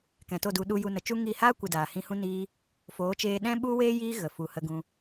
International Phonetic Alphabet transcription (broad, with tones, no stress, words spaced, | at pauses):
kɛ̃˨to˦˨du˧ ɗu˧ju˧nə˨t͡ʃu˦ ŋi˦˨ haː˦kʷɨ˨ daː˨hĩ˧hũ˦ niː˦ | foː˨˦t͡ʃeː˧ɗɛ̃˦ ɓu˦weː˦ jiː˦ɣə˨ fu˨hə˧ ɡũ˧